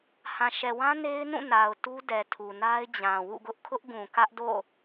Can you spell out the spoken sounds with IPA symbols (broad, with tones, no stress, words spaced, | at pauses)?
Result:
hã˨ʃɛ˨wã˦ ne˦ɪ̯nũ˦˨na˨ʊ̯ tu˦dɛ˨tʰu˨ na˦ɪ̯d͡ʑã˨ wṵ˦˨ɡʊ˦ʔ kʰʊ˦ʔɡũ˨kä˦ʔdo̰˦˨